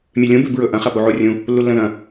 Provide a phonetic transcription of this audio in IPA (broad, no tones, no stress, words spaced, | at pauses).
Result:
mʲʉlʲũ bʉbɹɵʔɐ̃ χɐpuʕurʲũ | lːulːɐ̃ðɐ̃